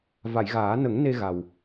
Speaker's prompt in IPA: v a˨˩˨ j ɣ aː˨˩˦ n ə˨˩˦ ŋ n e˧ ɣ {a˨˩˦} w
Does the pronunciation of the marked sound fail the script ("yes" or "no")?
yes